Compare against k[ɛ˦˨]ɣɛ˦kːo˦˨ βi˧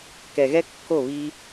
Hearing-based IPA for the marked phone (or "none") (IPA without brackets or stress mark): ɛ˨